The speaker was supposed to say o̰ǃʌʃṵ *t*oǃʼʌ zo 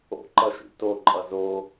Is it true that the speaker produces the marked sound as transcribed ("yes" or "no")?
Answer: yes